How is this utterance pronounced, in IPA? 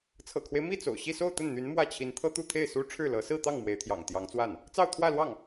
t͡sʰ ɤ̰˨˩ kʰ w e˦ ɪ̯ m i˥˩ t͡s o̰˨˩ ʊ̯ ɕ i˥˧ s o˥˧ ʊ̯ t̪ ə˥˩ n n̪ y˧˥ n m w ä˥˩ t͡ɕʰ i˧˥ n t̪ʰ ɤ˥ t̪ u˥˧ t̪ʰ e˥˩ ɪ̯ s u˥ ʈ͡ʂʰ ɻ̩˥˩ l ɤ˧˥ s ɹ̩˥˧ t̪ ɑ˥˩ ŋ m w e˧˥ ɪ̯ t̪ʰ j ɑ̰˨˩ ŋ t̪ j ɑ˧˥ ŋ t͡s w a˥˩ n | t͡s ɑ˥˧ ʊ̯ t̪ʰ w ä˥˧ l w ɑ˥˩ ŋ

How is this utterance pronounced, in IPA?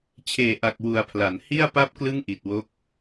t͡ɕʰ eː˨˩ ʔ a˨˩ k̚ w u˨˩ a̯ pʰ l a˩˦ n h i˥˩ a̯ p a˥˩ p̚ k l ɯ˥˩ ŋ ʔ i˨˩ t̚ w o˦˥ k̚

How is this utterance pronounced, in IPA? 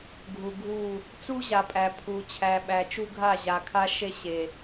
ɡʱ u˨ ɡʱ u˦˨ | t͡s u˦ ʑ a˨ pʼ æ˨ pʰ u˨ t͡ɕʰ æ˨ ɓ æ˨ t͡ʃ u˦ ɡʱ a˦˨ ʑ a˨ kʰ a˦ ʃ e˦ ɕ e˨

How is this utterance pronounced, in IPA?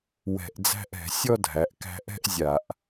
w ɛ̤˧˩˧ ʔ d͡z æ̤˥˧ ʔ ɛ̤˩˧ sʲ ɔ˥˧ dʱ æ˩˧ ʔ k æ̤˧ ʔ ɛ̤˥˧ ʔ zʲ a˧˩˧ ʔ

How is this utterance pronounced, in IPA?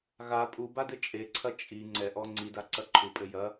ɣ a pʼ u b a d ɘ t͡ʃʼ e ǀʰ ɐ t͡ʃʼ i ŋ͡ǀ ɛ ʔ ɔ ŋ͡ǀ i d a ǀ ɐ ǃʰ u pʼ ɘ j ɐ

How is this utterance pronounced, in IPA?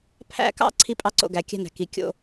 pʰ æ̰˥ k ɑ̰˥ ǀʰ i˥ pʼ ɑ˥ ǀ o̰˧ ɡ æ˩ kʲ æ̤˥ n æ̤˩ k i˩ kʲ o̰˧

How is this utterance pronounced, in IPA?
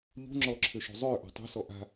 ʎ ṳ ŋ͡ǁ ɔ ǁʰ ʏ ʃ ṳ zˤ ʏː ʔ ɔ̤ tˤ ṳ s ɔ ʔ a̤

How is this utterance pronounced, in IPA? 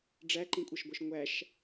ɖ͡ʐ æ ǃ ĩ kʷʼ ʌ ʃ ɡʷ ɜ ʃ ŋʷ æ ʃ

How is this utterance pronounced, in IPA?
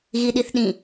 ɣ i ɗ i θ ɗ ĩ

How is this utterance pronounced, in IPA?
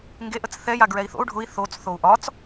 ŋ ɡ e ʔ ə t͡s θ ɛ j a ɡ ɹ ɛ i̯ θ o̰ u̯ ɖʱ ʊ i̯ θ o t͡s θ o u̯ ʔ ɒ t͡s

